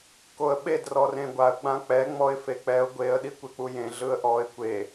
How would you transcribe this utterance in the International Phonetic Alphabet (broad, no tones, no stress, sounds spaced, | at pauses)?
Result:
k o ə̯ ɓ e d r ɔ r ẽ ɡʷ a ə̯ ɡ͡b ã k͡p ɛ ŋ͡m ɔ ɪ̯ f e k͡p ɛ ʊ̯ ɡʷ e ə̯ ɗ i kʷ e k͡p u j ẽ ɮ ɯ ə̯ ʔ ɔ ɪ̯ kʷ e